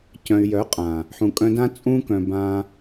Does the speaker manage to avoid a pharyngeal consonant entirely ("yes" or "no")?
no